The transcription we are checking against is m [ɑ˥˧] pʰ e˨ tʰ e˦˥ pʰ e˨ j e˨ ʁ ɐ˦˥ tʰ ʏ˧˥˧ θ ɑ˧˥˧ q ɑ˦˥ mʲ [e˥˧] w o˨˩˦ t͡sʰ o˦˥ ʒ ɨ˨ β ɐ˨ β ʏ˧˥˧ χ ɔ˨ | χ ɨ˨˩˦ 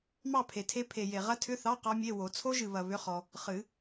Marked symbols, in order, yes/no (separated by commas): yes, no